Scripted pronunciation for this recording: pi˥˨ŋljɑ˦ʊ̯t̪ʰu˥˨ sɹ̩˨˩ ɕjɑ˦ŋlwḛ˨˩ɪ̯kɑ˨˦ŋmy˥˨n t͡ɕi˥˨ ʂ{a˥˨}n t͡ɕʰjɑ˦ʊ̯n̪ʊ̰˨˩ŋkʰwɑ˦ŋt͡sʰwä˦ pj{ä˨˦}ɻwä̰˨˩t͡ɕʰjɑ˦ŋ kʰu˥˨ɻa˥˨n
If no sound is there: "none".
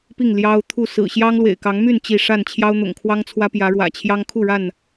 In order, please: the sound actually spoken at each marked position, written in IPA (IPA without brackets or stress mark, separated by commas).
a˥˨, ä˨˦